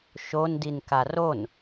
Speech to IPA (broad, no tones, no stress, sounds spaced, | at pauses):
ʃ o n d i n k a r o n